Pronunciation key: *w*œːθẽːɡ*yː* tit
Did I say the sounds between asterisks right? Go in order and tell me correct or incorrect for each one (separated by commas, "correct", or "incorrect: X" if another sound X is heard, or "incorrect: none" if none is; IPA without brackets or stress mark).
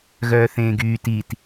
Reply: incorrect: ɣ, correct